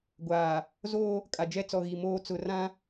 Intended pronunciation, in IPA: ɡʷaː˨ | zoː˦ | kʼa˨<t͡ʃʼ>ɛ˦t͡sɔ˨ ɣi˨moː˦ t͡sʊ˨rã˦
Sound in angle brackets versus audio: incorrect: d͡ʒ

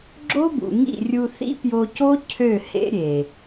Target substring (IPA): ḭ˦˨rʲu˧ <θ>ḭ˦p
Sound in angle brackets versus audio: correct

